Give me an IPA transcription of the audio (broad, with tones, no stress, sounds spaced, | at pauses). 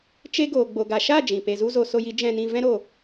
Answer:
t͡ʃ e˦ ɡ oː˨ ɡ͡b o˨ ɡ a˨ ʃ a˦˨ d͡ʒ ĩ˨ p e˧ z u˦ z o˧ s o˧ j i˨˦ d͡ʒ ɛ̃˧ n ĩ˧ v ɛ̃˦ ɾ o˧